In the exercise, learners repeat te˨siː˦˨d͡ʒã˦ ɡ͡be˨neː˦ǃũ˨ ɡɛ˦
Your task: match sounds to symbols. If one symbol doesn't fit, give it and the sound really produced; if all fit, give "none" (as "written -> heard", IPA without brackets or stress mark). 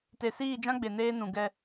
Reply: ǃ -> n